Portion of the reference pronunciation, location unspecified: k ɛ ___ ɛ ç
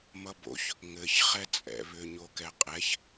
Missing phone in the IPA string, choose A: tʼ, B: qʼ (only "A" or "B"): B